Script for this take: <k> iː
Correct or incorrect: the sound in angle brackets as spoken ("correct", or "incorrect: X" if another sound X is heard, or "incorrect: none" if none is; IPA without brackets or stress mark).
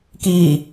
correct